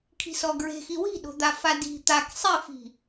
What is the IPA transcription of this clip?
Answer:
kʰ i̤ s ɔ ɡ ɹ e̤ x i w i̤ ɗ o̤ d̪ a f a d i̤ t̪ a k sˤ e f i̤

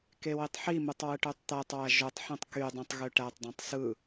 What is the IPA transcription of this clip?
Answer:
k e w i tˤ ħ i m ɯ tˤ w ɯ ʈ ø tˤ t̪ æ tˤ w æ ʒ o tˤ ħ ẽ tˤ k y dˤ ĩ tˤ ɣ ø ʈ æ tˤ dˤ æ̃ tˤ s ɯ

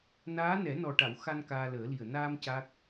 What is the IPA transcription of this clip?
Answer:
n aː˧˥ n ɛ˨˩˦ n ɔ˨˩ ʈ a˨˩˨ w x a˧ n k aː˧ l əː˨˩˦ l i˨˩ ə̯ n aː˧ m c a˦˥ k̚

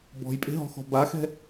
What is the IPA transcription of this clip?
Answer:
b ɔ̤ j pʼ e̤ ɦ ɔ̤ x ɔ̤ b a x ɛ̤

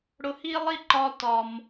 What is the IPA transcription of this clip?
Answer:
ɽ ʊ˧ h i˥ lˠ i˥ ǃ ɒ˧ t ɒ˩ m

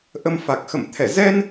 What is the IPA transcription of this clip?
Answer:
ʔ ə˧ m f a˨˩ k̚ x ə̰˧˨ m t̪ʰ ɛ˧˩ z ɛ˧ n

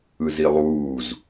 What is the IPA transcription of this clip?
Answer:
ɯ z i lˠ uː z

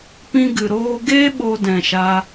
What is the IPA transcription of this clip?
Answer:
p ĩ˦ ɡ ɨ˨ ɾ oː˦ ɡ e˦ ɓ o˦ d ɛ̃˨ ʃ a˧

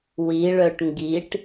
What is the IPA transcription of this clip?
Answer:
w i ɭ œ ʈ ŋ ɡ i ʈ

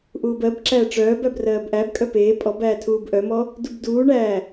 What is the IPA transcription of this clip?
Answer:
ʔ uː b ɜ b ǁ æː ʈ͡ʂ œː b æ b r ɜː b ʔ æ b kʼ œ p eː pʼ ɔ b æː tʰ uː b ʔ œ m ɔ | d u b d uː ɳ æː

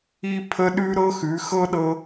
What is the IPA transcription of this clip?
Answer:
i˥ pʰ ə˥ ɗ ʉ˥ ɾ ɤ˥ x ʉ˧˥ x ɤ˥ ɗ ɤ˥

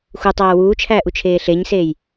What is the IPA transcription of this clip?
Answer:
x u tˤ æː w uː t͡ʃʰ æː ʔ u t͡ʃʰ eː ɬ e ɲ s eː j

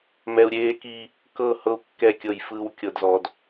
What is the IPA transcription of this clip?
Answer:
m ɛ˨ u̯ ɾʲ eː˦ k i˦ | k ɤ˦˨ h ɤ˦ u̯ kː ɛ˦˨ kʲ ɤ˦˨ j f ɯː˦ w kʲ ɤ˦ d z ɔ˦ d

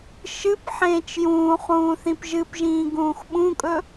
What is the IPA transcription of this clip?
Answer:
ʃ ɨ p ħ ẽː t͡ʃ j ũː χ ũː θ ĩ p ʒ ɨ p ʒ ĩː ɡ ũː x ɓ ũ kʼ ɵ

